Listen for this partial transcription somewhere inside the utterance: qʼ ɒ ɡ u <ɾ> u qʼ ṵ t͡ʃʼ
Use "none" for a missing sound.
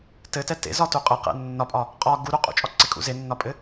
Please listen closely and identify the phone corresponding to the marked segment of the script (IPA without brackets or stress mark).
ɾ